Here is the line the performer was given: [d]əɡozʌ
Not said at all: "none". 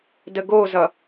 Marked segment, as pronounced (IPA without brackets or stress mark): d